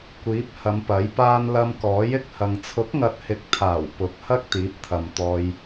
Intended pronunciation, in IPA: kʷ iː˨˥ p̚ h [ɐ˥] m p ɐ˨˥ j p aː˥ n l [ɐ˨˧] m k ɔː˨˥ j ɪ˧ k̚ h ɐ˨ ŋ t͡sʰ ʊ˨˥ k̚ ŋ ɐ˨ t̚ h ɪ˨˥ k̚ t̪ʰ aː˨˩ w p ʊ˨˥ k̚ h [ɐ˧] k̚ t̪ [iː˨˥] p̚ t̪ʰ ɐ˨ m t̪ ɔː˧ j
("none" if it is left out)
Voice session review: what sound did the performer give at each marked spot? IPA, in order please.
ɐ˨˧, ɐ˧, ɐ˥, iː˨˥

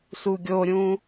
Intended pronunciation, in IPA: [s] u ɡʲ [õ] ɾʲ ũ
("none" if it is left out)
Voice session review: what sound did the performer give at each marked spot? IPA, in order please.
s, o

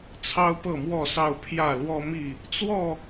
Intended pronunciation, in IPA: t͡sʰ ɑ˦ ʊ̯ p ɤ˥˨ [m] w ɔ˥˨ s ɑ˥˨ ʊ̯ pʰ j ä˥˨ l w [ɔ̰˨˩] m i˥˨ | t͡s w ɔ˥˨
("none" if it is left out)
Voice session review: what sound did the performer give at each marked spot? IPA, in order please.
m, ɔ˦

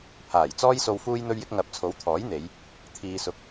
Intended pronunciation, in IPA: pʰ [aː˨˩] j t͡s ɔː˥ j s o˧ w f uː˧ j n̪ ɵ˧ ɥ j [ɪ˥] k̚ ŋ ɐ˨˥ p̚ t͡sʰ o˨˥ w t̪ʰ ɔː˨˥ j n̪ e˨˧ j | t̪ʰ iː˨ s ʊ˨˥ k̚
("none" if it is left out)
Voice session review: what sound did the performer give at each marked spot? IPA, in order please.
aː˨˩, ɪ˧

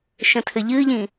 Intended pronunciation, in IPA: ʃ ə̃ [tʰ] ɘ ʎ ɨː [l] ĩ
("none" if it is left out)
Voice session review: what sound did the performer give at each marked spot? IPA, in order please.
tʰ, ʎ

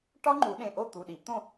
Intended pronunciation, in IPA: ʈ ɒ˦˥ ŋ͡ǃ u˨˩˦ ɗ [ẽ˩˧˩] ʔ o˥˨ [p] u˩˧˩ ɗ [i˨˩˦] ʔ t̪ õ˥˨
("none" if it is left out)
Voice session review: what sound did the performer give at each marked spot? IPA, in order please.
ẽ˩˧˩, t̪, i˨˩˦

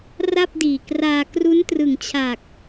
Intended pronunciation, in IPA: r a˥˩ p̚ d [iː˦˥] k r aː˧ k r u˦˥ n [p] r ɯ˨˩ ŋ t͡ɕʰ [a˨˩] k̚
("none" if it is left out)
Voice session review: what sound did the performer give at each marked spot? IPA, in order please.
iː˨˩, t, a˨˩

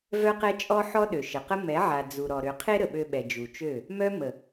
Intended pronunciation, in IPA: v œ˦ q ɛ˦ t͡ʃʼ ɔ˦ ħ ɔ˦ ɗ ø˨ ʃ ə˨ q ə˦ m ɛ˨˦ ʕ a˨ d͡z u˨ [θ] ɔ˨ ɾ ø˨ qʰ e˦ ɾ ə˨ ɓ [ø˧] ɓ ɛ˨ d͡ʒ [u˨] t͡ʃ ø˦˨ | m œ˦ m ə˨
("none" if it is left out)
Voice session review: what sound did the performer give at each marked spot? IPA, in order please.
ɾ, ø˧, u˨

